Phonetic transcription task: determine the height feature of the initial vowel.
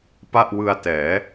low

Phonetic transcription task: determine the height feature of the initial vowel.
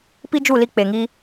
high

